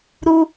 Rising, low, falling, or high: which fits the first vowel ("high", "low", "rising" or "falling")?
high